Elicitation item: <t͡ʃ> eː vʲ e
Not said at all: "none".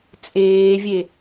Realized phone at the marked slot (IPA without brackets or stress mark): t͡sʼ